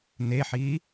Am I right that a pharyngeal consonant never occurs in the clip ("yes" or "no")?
no